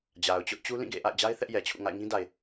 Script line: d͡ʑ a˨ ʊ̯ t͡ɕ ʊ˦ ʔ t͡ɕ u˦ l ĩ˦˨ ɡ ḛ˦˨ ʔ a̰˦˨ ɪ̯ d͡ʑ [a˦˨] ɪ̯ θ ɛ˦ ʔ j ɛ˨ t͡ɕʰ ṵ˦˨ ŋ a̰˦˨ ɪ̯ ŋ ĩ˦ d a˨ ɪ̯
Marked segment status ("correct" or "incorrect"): incorrect